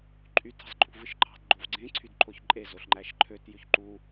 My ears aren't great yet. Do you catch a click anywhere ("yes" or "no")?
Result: yes